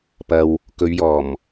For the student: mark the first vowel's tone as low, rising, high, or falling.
low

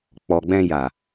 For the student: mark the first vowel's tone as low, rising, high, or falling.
low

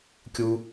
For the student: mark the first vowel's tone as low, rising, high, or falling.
low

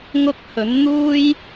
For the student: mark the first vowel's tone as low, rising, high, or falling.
high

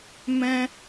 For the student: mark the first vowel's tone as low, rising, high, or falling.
high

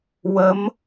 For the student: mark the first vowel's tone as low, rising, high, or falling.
rising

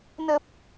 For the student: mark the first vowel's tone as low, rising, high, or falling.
low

